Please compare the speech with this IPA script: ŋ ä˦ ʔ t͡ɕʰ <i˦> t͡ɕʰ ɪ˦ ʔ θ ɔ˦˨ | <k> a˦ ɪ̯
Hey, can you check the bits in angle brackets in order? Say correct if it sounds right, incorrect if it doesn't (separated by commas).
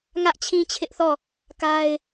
incorrect, correct